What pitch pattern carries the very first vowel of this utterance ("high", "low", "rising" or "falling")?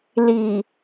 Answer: low